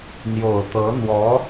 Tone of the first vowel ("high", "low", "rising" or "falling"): low